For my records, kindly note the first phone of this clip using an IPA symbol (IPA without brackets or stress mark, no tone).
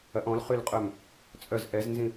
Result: ɐ